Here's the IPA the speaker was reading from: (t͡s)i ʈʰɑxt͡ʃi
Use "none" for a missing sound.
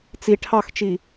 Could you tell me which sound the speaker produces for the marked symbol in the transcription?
t͡s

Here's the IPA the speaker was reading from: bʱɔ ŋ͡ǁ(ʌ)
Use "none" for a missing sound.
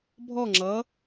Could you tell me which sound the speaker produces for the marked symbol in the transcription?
ʌ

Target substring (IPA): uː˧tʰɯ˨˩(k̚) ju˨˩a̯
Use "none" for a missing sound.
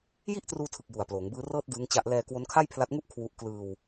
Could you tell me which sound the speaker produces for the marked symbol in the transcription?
k̚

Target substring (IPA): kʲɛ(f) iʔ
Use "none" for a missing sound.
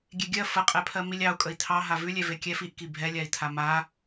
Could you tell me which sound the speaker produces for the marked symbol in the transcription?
f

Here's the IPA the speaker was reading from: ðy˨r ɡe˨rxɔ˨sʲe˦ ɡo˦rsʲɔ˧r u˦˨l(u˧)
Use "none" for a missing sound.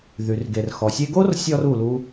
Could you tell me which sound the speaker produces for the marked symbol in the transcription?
u˦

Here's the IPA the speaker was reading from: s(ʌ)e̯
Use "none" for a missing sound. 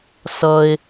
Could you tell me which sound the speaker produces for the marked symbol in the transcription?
ʌ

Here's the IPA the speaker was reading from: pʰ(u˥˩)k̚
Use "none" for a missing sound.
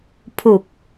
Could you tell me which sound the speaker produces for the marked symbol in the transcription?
u˨˩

